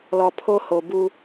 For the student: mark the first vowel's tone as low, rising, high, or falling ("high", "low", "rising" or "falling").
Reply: low